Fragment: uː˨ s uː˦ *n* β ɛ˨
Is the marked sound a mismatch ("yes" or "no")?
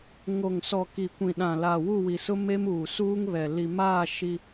yes